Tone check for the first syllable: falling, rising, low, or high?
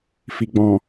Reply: low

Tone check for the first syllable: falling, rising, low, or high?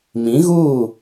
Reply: rising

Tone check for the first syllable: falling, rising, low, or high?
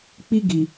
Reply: high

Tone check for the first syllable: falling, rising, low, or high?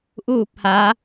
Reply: falling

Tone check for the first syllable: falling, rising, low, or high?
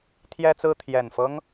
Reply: high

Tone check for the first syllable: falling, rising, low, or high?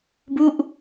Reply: falling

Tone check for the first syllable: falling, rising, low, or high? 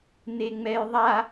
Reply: low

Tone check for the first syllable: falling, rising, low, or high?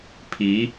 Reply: rising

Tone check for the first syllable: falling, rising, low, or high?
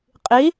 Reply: rising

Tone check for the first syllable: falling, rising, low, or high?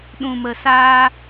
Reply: low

